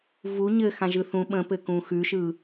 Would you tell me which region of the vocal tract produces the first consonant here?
lips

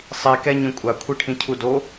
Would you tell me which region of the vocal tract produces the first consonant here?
tongue tip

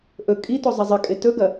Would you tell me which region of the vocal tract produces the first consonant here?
throat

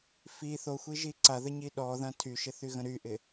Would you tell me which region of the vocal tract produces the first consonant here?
lips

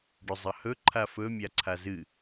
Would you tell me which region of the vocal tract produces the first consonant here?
retroflex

